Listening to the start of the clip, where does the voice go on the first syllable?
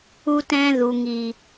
high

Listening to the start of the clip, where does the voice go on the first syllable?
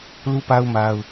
high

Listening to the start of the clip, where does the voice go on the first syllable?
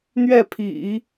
falling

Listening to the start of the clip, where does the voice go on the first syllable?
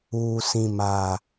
low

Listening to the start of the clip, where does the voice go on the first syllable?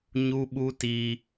high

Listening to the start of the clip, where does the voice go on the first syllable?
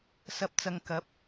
low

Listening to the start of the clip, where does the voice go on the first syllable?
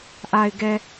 low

